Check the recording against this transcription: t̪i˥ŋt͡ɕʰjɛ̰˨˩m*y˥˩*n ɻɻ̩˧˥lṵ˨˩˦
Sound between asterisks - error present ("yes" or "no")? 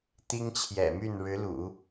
no